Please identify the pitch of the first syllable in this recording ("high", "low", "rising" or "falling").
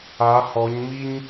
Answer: rising